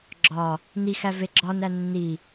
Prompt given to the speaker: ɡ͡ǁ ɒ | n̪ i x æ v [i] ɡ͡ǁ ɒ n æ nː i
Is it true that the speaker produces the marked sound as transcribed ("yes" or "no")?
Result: no